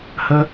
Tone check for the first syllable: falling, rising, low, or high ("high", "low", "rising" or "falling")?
high